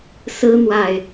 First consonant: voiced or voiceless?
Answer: voiceless